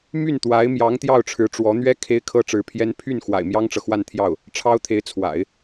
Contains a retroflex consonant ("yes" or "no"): yes